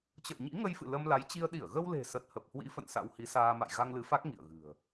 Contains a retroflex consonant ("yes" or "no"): no